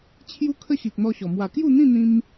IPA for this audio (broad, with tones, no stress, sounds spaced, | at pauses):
t͡ɕʰ j u˦ kʰ ə˦ ɕ i˨ k̚ n̪ ɔ˦ ɕ ɔ˨˩ m w a˨˩ k j u˥˧ n̪ ĩ˥˧ n̪ ĩ˧ m